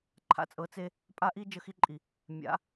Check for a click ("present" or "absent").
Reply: present